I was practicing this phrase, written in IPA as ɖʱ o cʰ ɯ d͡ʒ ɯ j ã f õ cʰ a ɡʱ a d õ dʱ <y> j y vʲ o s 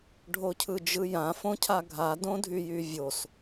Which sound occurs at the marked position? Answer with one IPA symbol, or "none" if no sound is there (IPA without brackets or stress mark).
y